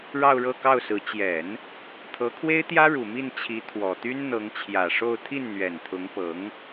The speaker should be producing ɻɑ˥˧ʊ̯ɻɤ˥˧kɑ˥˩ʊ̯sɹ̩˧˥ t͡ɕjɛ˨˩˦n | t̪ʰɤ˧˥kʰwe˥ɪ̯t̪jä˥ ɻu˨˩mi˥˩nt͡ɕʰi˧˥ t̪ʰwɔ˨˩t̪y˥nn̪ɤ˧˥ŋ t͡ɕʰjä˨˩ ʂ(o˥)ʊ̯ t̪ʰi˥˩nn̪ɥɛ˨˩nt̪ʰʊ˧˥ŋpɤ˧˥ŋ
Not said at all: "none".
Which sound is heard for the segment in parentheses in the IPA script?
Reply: o˥˧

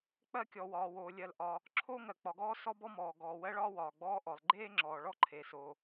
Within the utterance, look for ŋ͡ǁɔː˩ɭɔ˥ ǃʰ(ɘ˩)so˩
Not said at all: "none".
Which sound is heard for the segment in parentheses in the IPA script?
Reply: e˩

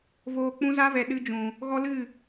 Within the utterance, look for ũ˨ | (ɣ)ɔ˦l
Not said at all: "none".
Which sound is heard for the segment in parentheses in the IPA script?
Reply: ɣ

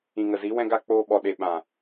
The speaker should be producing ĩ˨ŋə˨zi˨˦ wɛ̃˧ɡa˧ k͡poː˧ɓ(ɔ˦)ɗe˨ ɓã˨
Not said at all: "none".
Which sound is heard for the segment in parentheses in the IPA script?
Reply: ɔ˨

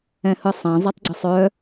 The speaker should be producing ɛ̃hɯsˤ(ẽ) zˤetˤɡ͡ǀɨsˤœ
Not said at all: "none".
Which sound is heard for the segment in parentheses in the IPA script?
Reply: ɛ̃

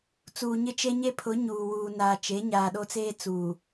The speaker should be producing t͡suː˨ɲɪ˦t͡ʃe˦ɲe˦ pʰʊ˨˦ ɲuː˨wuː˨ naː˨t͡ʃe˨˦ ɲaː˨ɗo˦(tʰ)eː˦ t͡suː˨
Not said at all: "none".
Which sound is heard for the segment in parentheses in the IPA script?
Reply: t͡s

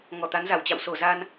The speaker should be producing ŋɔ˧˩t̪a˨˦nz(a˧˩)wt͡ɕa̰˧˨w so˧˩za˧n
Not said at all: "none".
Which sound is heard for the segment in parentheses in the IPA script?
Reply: a˧˩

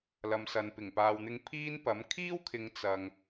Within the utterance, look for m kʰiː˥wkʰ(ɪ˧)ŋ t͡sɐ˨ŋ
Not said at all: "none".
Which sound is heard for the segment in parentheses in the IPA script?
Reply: ɪ˨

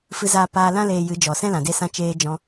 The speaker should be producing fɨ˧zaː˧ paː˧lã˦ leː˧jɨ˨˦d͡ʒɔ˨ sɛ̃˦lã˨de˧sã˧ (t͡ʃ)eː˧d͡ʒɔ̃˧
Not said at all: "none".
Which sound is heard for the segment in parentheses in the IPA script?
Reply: t͡ʃ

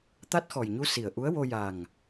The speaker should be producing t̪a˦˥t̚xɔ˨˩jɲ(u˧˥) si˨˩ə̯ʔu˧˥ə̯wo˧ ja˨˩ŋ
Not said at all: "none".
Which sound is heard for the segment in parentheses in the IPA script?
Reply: u˧˥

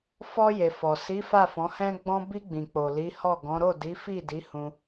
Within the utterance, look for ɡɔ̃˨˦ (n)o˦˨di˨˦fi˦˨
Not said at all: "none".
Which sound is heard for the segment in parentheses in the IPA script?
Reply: ɾ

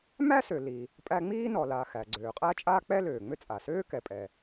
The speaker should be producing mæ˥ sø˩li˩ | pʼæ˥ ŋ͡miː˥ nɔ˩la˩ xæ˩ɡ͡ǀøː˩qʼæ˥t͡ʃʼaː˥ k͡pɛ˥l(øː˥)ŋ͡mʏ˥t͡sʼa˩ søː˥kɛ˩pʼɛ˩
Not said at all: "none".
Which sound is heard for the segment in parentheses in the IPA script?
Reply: øː˩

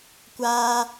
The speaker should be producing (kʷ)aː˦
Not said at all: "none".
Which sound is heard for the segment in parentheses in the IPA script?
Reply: kʷ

